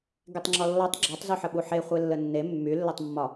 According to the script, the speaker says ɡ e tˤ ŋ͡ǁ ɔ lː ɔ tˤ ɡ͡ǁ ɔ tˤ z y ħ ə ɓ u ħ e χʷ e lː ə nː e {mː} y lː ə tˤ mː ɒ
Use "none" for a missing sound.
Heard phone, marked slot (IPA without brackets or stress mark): mː